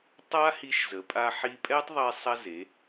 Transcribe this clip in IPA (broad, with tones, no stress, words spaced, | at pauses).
tˤa˥hi˧ʃzə˩˧ pʼa˧ħi˧pʼɛ˥tˤðˤɛ˧ sˤɐ˧ze˩˧